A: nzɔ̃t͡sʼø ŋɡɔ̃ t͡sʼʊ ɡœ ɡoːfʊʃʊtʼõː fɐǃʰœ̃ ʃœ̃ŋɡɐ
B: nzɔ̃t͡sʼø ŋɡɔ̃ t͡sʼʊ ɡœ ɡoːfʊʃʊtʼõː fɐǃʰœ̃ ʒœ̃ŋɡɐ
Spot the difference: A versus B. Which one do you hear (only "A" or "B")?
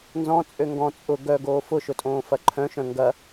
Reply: A